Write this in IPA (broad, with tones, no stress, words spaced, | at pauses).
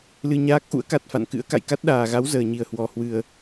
lɨ˧ɲaː˦˥k̚ ʔṵ˧˥ə̯ka˨˩t̚fa̰˧˨nkɨ̰˧˥ə̯ ka̰˧˨jka˦˥t̚ɗaː˨˩ɣa˨˦w zəː˨˩ɲi˧˩ə̯hwɔ˨˩ hwɨ˨˩ə̯